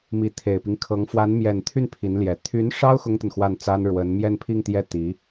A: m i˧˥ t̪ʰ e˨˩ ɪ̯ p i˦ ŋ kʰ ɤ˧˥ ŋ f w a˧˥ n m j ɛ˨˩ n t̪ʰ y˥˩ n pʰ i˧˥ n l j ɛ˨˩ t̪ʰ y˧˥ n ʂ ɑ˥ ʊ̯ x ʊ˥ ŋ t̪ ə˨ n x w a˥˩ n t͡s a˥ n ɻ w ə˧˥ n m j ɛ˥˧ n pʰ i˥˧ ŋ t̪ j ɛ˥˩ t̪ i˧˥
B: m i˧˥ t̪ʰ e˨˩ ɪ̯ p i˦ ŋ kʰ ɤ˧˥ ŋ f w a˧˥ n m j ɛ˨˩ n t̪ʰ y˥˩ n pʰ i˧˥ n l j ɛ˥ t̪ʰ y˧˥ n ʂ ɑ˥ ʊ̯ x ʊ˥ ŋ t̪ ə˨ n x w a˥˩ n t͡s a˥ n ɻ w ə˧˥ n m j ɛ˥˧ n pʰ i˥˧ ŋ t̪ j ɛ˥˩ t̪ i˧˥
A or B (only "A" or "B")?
A